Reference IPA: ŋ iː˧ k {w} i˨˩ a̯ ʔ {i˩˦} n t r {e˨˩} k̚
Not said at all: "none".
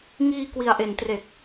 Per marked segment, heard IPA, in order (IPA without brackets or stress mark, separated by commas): w, e˩˦, e˨˩